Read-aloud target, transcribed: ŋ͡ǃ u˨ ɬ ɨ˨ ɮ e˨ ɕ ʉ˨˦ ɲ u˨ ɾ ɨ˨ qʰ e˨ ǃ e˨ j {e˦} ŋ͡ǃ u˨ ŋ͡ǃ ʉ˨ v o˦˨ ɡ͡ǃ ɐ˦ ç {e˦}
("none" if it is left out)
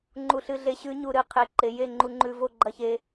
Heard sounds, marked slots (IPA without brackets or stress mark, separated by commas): e˦˨, e˦